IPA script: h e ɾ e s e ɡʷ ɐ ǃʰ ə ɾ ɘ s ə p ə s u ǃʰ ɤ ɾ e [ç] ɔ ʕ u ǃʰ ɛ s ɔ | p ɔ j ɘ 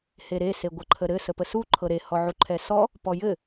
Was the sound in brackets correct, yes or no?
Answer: no